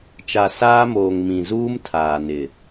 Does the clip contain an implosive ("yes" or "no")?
no